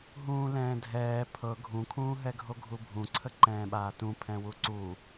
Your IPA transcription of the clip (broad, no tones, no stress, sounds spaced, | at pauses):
ɦ ũː l ɛ̃ː dʱ ɛː pʰ ɤ ɡʱ ũ kʰ ũː ɦ ɛ ɡʱ o ɡʱ u bʱ ũ ǀʰ ə ǃ ɛ̃ː ɓ aː t ũ pʰ ɛ̃ w u ǀ u